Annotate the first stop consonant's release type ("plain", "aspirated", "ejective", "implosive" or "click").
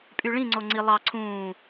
ejective